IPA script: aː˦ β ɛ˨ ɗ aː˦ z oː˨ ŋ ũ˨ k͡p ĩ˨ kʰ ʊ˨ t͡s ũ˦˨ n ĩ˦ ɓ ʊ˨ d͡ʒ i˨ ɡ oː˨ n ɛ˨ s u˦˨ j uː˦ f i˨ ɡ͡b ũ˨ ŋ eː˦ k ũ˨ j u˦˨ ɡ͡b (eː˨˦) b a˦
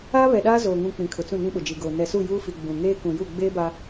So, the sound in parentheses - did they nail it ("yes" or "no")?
no